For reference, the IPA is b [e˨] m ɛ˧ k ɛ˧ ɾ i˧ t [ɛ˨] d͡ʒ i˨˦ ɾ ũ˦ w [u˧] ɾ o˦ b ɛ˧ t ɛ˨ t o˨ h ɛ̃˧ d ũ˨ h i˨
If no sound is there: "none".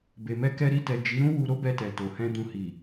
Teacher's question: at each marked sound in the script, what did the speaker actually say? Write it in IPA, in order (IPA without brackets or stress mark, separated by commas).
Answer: e˨, ɛ˨, u˧